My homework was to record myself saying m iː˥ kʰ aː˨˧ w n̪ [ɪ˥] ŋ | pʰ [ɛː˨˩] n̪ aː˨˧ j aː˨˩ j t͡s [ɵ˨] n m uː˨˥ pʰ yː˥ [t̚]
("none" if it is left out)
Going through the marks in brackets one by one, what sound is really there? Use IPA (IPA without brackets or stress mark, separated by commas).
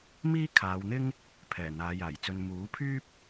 ɪ˥, ɛː˨˩, ɵ˧, p̚